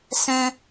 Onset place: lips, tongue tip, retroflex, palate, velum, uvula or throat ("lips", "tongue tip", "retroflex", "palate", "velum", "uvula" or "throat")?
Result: tongue tip